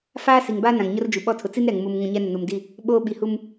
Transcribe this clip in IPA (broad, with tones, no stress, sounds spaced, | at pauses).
f aː˦ s i˨ ŋ b aː˦ n ã˨ ŋ ɲ ʊ˦ r d͡ʒ u˨ ɓ ɔ˦ tʰ ʊ˨ t͡s i˦ n ɾ ɛ˨ ŋ m u˨ m ŋ ũ˨ ɲ ɛ˦ n ɪ˨ n u˨ m d i˦˨ | ɓ oː˦ ɓ i˨ h u˦ m